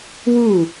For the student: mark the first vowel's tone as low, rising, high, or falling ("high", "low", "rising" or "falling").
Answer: falling